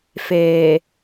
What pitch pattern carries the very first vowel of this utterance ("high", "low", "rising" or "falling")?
low